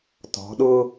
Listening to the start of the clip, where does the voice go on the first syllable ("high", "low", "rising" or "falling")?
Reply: rising